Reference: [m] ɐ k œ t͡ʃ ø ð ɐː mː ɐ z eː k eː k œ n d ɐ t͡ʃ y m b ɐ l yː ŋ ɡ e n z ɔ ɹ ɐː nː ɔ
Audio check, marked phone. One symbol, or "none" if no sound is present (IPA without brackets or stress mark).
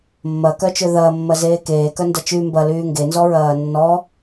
mː